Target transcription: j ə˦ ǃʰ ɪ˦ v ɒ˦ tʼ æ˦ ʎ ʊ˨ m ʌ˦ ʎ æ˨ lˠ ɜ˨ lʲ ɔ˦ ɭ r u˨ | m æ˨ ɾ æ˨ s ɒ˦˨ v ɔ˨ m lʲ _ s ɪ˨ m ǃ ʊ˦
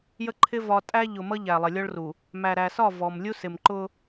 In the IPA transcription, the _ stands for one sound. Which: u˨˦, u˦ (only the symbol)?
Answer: u˦